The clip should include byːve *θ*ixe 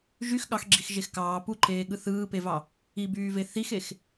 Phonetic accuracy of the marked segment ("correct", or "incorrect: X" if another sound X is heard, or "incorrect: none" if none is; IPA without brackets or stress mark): correct